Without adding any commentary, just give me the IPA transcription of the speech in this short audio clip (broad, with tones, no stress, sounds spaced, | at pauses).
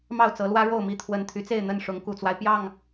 m ɑ˥˨ ʊ̯ t͡s ɤ˨˦ l w ä˦ ɻ o˥˨ ʊ̯ m i˥˨ t̪ʰ w ə˨˩ n t̪ʰ y˨˦ t͡s e˥˨ ɪ̯ n̪ ə˥˨ n ʂ ʊ˨˦ ŋ k u˨˩ t͡s w a˦ ɪ̯ p j ɑ˥˨ ŋ